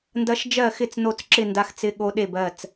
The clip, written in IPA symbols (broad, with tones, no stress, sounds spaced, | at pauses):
n d ɐ˧˥ ʃ d͡ʒ ɜ˥˩ x ɪ˥˩ t͡s n o˥˩ t͡s ǁ ɪ˥˩ n d a˧˥ x t͡s ɪ˧˥ ɠ o˧˥ ɗ e˥˩ b ɜ˥˩ t͡s